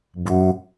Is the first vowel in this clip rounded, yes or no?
yes